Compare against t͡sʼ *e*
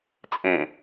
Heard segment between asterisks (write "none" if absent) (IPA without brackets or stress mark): ẽ